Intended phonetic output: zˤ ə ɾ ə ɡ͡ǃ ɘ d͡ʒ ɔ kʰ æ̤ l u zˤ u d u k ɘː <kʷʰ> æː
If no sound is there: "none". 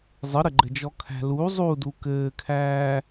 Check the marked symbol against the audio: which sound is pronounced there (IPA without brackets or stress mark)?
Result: kʰ